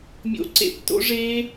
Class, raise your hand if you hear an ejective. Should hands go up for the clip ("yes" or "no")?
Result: no